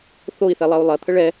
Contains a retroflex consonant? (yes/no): yes